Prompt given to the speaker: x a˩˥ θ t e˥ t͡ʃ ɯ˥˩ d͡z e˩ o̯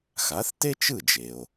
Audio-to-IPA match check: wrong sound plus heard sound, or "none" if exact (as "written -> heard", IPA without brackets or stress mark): d͡z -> d͡ʒ